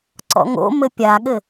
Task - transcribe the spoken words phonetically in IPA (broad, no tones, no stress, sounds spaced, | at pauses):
ǀ ɔ̰ ŋ o̰ m ɘ pʲ a ɠ ɘ